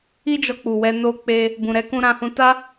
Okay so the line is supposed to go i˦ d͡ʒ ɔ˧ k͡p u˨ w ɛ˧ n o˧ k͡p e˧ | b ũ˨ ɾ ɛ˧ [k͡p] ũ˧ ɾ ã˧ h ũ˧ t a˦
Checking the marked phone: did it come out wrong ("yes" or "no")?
yes